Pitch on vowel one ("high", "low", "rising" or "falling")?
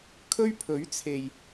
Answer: high